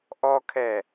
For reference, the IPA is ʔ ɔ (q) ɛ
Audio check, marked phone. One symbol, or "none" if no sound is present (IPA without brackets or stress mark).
kʰ